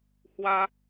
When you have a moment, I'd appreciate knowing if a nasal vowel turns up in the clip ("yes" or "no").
no